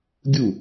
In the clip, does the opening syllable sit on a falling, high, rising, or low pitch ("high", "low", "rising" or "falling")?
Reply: falling